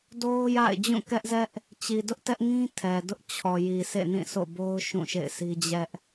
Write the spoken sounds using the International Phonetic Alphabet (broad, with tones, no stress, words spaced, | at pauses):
do˦ʊ̯ja̰˦˨ɪ̯ d͡ʑũ˦˨kɛ˦ʔzɛ˦ʔ | t͡ɕi˨dʊ˦ʔ tɛ˦ʔŋĩ˦ tʰɛ˨dʊ˦ʔ t͡ɕʰɔ˨ji˨ sḛ˦˨nĩ˦˨so̰˦˨bo˦ʊ̯ ʃũ˦˨ʃḛ˦˨ɪ̯si˦ d͡ʑɛ˦ʔ